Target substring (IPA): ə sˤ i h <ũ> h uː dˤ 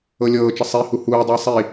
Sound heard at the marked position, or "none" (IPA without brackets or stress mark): u